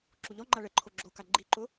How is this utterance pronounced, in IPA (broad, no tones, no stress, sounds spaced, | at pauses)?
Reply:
ǁ u ʎ ɔ ŋ͡ǃ a ɭ ɛ ǃʰ o ɡ͡ǁ o k a ɡ͡ǃ i ǃ ʊ